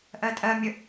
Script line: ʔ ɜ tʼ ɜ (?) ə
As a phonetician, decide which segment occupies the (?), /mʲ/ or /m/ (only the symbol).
mʲ